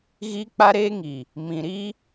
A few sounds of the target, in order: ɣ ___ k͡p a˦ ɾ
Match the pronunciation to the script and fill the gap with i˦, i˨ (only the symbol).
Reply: i˦